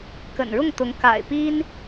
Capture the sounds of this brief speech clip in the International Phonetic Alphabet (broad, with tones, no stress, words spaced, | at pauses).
kə̰˨˩nɻʊ˥˩ŋt̪ʊ˧˥ŋ ka̰˨˩ɪ̯pi˥n